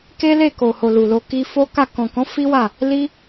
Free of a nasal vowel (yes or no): no